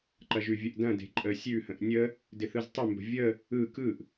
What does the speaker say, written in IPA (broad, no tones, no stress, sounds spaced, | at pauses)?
ǃ ɐ ʒ ʉ vʲ ə ʔ d ɐ̃ d e̤ ǃʼ ə sʲ ʉ h ə̃ ʔ nʲ ə | d ɪ θ ɯ z tˤ ɪ m b ə̤ vʲ ə | ɯ k ɯ ʔ